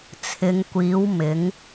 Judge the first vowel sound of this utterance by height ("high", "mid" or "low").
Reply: high